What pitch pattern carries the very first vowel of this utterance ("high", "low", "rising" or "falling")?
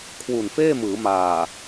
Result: low